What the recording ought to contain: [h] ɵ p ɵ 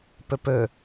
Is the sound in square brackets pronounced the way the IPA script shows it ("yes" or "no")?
no